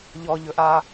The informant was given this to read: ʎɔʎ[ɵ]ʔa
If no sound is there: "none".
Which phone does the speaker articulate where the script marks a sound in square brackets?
ɵ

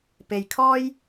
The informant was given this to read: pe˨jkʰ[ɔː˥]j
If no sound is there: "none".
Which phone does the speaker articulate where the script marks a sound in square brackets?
ɔː˥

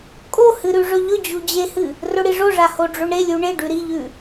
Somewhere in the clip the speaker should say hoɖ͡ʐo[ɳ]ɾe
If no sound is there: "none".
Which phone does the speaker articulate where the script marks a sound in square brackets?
ɳ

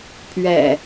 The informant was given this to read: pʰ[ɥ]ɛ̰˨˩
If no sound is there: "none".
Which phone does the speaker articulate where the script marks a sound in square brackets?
ɥ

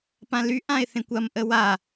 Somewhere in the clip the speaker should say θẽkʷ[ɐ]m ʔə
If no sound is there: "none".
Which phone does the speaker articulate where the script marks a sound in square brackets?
ɐ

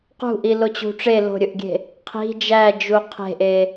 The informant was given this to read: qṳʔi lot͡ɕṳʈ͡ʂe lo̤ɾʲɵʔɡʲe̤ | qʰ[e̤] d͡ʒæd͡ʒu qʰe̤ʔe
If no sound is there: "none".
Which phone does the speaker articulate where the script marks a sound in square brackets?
i̤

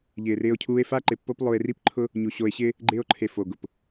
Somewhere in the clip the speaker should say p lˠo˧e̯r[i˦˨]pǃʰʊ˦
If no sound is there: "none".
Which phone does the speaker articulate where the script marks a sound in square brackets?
i˦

